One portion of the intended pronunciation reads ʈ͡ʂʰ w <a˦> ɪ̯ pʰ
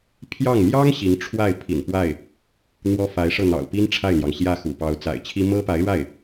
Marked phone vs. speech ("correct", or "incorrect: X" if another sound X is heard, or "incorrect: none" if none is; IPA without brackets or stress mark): incorrect: a˥˩